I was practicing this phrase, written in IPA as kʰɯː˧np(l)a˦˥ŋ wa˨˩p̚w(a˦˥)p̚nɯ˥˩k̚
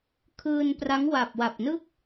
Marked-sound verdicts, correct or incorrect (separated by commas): incorrect, incorrect